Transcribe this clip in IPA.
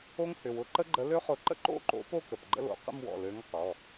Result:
o˦˥ ŋ h ʏ˩˧˩ w ʊ˨˥ ǃ ə˦˥ ɡ͡ǃ ə˨˥ l ø˦˥ χ ʊ˨˥ ǃ ə̰˥˧ ǃ o̰˥˧ ǃ o̰˨˥ p o˥˧ k ə˩˧˩ p ɡ͡ǃ ə̰˥˧ l o̰˩˧˩ q ə̰˥˧ m w ɔ̰˩˧˩ l ø˨˥ ŋ q ɔ˩˧˩

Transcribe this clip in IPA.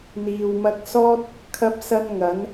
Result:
n̪ iː˨ w m ɐ˧ k̚ s ɔː˥ t̚ | kʰ ɐ˥ p̚ s ɐ˥ n ŋ ɐ˨˥ n

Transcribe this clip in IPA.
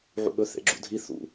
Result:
ʕ ṵ ɠ ɵ θ ḛ ɡ͡ǁ ṵ dʱ i θ ṵ

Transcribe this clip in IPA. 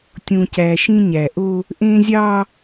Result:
tʲ ũ˨ c æ˨ ʃ ĩ˦ ɲ æ˨ ʔ o˦ | ʔ ẽ˦ zʲ ɑ˦

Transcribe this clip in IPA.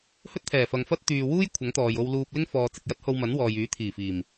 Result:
h ɵ˥ t̚ t̪ʰ ɛː˨˩ f ɐ˨ ŋ f ɐ˥ t̚ t̪ yː˨ w uː˥ j kʷʰ ɐ˨˥ ŋ t̪ ɔː˨ j o˧ w l uː˧ p̚ l ɪ˥ ŋ f ɔː˨ t͡s ɪ˨ k̚ j ɐ˥ t̚ h o˧ w m ɐ˨˥ n w ɔː˨ j yː˨˥ t̪ʰ iː˨˩ f iː˨˩ m

